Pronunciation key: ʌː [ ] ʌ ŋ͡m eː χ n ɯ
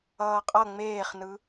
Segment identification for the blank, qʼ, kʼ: qʼ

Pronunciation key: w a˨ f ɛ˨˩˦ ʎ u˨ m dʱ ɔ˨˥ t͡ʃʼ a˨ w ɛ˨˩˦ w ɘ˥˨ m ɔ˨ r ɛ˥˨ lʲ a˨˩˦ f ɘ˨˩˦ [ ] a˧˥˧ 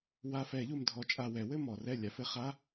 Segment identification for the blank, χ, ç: χ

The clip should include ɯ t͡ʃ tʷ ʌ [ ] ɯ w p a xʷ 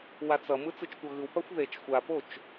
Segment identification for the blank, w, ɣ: ɣ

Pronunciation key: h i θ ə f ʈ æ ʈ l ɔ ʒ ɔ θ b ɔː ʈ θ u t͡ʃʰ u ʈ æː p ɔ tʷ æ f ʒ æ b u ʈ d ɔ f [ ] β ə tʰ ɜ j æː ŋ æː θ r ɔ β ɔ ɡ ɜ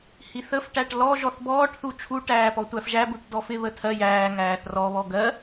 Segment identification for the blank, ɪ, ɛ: ɪ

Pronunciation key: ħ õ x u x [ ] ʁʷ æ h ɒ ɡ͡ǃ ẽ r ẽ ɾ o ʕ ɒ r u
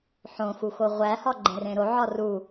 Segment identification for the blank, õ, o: o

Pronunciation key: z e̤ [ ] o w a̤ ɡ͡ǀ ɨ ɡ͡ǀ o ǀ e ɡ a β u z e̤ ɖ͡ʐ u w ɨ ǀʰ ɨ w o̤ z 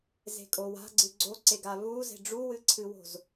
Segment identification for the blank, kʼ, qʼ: kʼ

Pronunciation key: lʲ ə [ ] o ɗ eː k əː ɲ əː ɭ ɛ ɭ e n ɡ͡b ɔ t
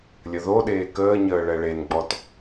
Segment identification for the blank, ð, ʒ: ð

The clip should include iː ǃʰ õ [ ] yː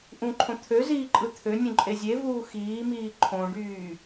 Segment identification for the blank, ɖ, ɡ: ɖ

